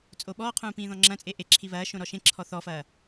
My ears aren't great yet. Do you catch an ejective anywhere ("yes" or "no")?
yes